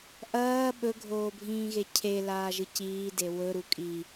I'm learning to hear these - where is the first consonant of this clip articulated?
throat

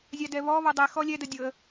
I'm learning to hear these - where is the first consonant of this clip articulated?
tongue tip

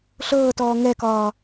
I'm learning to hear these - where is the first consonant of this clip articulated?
tongue tip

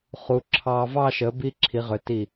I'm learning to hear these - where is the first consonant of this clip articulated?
uvula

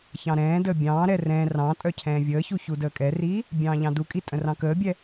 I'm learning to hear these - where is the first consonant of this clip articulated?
palate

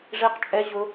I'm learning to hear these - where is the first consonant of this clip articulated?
retroflex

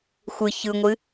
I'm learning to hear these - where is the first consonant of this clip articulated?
velum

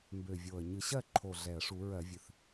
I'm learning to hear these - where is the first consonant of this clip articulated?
lips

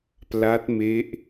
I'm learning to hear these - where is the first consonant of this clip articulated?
lips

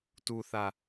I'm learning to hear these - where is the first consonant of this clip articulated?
tongue tip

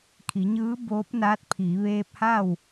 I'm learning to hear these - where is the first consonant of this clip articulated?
velum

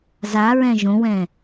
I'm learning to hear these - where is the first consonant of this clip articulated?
tongue tip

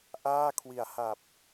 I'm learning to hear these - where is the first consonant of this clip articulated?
throat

